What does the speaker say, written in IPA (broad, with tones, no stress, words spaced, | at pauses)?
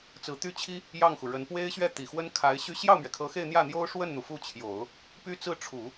t͡sɹ̩˧˥t̪y˥˩ t͡ɕʰi˥ | jɑ˥˩ŋxu˩ɻə˧˥n pwe˥ɪ̯ɕɥɛ˥˩ t̪i˨˩xwə˥n kʰa˧˥ɪ̯ɕy˥ ɕjɑ˥˩ʊ̯mɥɛ˩kʰɤ˧˥ xe˥˧ɪ̯ n̪jä˥˩n̪jo˥ʊ̯ʂwə˥˩nn̪u˩ fu˥˩t͡ɕʰjo˨˩˦ʊ̯ | py˥t͡sɹ̩˥˩ʈ͡ʂʰu˨˩˦